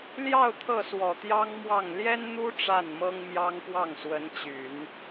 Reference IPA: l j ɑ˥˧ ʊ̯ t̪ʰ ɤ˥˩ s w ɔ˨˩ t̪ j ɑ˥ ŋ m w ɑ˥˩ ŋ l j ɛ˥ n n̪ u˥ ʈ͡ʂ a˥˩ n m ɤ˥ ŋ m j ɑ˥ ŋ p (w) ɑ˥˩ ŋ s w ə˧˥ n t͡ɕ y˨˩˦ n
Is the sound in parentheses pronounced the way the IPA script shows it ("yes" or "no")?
yes